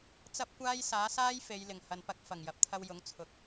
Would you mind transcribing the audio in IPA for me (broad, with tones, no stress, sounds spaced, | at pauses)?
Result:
t͡s ɐ˥ p̚ kʷ aː˥ j s aː˨˥ s aː˥ j f e˨˧ j l ɪ˨˩ ŋ h ɐ˨ n p ɐ˧ k̚ f ɐ˨˩ ŋ j ɐ˨ p̚ t̪ʰ ɐ˧ w j ʊ˨˥ ŋ t͡sʰ ʊ˨˥ k̚